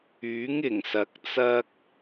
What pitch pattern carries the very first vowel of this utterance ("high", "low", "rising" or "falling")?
rising